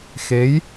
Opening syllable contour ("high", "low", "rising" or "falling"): rising